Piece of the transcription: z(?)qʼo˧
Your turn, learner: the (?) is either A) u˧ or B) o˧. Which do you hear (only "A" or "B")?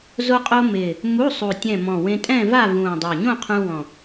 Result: B